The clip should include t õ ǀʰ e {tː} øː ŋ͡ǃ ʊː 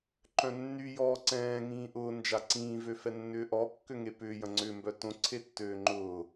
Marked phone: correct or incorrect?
correct